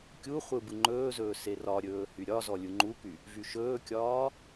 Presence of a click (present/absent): present